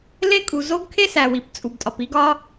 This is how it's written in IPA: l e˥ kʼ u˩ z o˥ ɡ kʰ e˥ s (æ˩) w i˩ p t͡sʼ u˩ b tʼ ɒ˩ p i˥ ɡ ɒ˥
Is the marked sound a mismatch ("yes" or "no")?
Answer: no